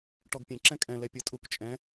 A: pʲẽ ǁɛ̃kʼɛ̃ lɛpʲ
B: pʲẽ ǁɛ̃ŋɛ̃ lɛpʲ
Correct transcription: A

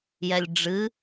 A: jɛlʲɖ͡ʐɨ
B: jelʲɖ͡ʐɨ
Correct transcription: A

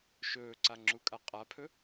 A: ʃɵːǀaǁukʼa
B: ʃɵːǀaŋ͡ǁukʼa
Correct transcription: B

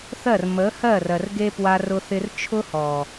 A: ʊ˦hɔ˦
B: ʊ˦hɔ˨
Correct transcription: B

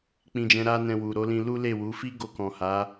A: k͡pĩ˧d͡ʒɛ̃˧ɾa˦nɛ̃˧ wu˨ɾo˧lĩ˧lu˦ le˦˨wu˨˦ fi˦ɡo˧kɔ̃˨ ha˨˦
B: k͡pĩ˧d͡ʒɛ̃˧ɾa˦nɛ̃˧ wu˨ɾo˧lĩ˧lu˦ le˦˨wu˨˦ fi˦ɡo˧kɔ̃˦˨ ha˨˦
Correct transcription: A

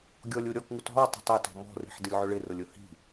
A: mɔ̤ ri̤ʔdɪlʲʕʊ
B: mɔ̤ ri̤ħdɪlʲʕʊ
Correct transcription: B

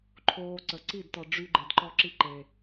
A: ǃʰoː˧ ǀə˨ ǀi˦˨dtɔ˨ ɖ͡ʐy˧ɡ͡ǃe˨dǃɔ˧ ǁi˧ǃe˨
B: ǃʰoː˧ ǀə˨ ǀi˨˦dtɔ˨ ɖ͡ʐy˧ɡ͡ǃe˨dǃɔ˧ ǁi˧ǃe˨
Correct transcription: A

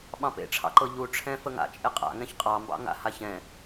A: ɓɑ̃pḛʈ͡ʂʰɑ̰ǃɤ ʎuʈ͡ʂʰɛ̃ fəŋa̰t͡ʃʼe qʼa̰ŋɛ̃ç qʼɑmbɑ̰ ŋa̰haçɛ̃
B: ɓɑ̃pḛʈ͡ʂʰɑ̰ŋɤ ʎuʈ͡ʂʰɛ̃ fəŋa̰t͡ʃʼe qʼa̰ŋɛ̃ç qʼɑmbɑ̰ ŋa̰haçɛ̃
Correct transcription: A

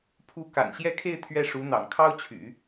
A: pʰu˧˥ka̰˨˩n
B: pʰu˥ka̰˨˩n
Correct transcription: A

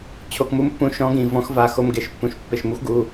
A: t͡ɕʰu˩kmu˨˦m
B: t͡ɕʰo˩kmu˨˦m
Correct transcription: B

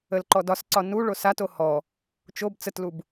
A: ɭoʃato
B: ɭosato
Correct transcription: B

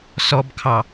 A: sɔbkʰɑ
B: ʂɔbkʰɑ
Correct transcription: A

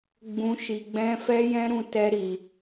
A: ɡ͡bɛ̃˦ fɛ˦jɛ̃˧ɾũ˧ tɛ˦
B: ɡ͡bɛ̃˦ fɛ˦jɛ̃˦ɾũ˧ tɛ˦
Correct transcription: B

